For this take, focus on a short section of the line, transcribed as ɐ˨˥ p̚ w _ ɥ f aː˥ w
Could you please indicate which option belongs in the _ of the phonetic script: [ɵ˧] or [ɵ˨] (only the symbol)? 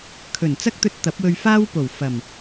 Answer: ɵ˧